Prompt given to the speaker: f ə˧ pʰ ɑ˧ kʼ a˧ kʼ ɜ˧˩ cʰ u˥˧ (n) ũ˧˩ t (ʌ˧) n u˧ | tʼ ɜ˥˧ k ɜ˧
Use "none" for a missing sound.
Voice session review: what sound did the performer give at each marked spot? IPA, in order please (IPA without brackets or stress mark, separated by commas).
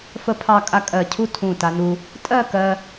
tʰ, a˧